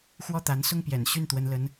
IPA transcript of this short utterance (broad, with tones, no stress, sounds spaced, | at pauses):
x w ɔ˥˩ t̪ a˧˥ n s ʊ˥˩ ŋ p j ɛ̰˨˩ n ɕ y˥˩ n t̪ w ə˧˥ n l ə˧˥ n